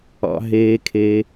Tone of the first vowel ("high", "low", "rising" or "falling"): low